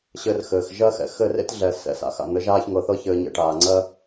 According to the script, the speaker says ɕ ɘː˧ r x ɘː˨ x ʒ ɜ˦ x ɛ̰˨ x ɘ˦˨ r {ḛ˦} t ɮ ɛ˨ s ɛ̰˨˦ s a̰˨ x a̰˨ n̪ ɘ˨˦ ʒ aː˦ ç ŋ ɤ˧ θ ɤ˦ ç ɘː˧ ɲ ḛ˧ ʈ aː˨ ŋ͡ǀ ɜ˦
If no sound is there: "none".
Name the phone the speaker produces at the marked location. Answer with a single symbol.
ḛ˦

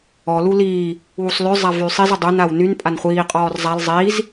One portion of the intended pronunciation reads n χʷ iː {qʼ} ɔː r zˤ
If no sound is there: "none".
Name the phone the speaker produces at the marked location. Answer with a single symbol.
qʼ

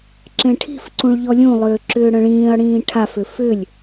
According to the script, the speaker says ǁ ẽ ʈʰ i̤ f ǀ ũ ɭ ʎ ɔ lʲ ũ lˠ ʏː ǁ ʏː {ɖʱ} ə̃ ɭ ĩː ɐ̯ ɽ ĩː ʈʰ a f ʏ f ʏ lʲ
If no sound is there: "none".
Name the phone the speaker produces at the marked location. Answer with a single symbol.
ɽ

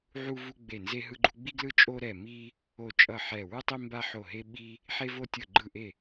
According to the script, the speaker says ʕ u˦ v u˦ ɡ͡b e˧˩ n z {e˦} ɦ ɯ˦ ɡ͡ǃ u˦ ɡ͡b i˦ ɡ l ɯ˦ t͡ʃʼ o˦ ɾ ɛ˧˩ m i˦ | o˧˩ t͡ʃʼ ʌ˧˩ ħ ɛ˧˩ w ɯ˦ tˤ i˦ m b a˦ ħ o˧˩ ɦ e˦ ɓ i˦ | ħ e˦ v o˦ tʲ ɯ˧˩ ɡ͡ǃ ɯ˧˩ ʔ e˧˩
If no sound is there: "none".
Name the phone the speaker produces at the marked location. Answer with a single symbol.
e˦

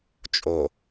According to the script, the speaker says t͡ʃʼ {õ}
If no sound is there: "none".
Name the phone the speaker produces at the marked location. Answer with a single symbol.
o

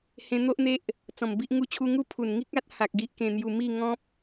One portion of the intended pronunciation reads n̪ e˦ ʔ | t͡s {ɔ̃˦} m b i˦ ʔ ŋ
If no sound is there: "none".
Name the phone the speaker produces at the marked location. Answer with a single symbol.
ɔ̃˨˩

